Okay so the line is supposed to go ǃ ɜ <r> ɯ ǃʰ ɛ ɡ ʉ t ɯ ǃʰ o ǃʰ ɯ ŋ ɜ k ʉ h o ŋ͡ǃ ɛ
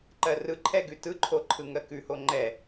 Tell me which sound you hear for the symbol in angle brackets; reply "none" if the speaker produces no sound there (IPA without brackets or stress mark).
r